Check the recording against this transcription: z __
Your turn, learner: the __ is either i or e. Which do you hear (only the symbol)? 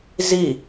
i